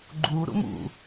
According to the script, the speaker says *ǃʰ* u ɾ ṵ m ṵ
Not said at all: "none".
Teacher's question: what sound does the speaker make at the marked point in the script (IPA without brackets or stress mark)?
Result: ɡ͡ǃ